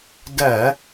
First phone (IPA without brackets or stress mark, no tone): d